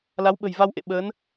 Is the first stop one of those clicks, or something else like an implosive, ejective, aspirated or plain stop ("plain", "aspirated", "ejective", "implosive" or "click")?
implosive